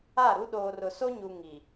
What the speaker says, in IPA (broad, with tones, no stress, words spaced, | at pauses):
a˦˨ɾu˦ ɗoː˨rʊ˨so˦ɲu˨ ŋi˨